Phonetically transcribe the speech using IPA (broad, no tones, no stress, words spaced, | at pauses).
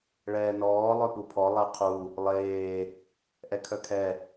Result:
ɭɛːnɔː lˠœpupʰɔ lˠɛqʰu | lˠeː | ʔɛkʰœkʰɛ